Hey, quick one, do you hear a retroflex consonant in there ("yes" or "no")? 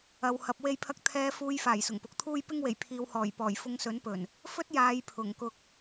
no